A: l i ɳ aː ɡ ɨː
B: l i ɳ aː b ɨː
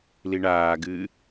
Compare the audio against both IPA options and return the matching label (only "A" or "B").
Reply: A